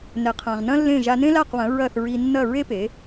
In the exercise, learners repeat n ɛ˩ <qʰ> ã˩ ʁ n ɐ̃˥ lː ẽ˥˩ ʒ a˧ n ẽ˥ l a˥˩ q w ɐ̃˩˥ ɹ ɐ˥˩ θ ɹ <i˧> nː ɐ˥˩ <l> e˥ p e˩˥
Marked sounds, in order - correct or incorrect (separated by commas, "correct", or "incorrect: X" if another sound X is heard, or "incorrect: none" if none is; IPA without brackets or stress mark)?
correct, correct, incorrect: ɹ